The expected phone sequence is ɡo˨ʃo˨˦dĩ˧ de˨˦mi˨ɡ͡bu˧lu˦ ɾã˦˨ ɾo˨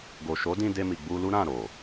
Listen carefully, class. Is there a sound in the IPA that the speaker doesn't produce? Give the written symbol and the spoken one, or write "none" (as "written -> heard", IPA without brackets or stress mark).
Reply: e˨˦ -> e˧